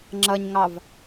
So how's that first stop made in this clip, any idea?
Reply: click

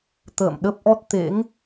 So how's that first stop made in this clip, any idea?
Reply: plain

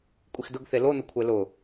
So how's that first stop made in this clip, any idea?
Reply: ejective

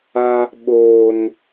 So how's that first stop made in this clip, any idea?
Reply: implosive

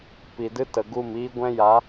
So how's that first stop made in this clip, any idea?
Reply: plain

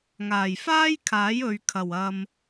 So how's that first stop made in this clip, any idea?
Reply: aspirated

